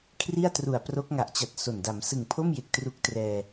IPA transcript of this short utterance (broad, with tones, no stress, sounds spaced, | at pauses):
kʰ r i˥˩ a̯ t r u˨˩ a̯ p r o˦˥ k̚ ŋ a˨˩ ʔ t͡ɕ a˨˩ t̚ s o˨˩ n d a˩˦ m s ɯ˨˩ ŋ pʰ o˥˩ m j e˨˩ k̚ t r u˦˥ k̚ t r ɛː˧